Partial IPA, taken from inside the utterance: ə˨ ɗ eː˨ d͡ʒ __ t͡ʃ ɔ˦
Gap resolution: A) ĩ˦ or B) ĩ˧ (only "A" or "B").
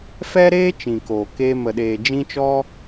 A